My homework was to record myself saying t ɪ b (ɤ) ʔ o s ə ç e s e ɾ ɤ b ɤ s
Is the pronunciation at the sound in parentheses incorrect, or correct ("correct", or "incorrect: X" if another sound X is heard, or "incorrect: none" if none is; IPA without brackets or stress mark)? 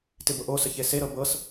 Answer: correct